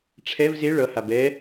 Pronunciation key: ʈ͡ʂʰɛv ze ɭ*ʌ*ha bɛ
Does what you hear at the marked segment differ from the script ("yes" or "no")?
no